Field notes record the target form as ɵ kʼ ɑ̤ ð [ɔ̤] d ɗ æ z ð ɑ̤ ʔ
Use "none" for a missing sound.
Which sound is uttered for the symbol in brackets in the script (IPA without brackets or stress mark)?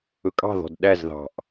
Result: ɔ̤